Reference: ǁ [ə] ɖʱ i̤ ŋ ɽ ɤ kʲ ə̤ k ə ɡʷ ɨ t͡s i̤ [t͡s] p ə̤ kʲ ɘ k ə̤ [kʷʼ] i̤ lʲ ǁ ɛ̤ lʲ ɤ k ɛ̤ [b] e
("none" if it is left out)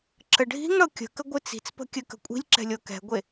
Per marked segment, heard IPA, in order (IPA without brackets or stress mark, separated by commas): ə, t͡s, kʷʼ, ɡʷ